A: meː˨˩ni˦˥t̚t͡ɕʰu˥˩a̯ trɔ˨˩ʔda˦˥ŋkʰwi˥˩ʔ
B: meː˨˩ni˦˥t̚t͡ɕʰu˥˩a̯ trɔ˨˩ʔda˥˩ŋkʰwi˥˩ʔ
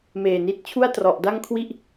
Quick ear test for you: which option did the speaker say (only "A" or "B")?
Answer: B